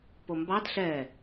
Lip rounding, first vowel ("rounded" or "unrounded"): rounded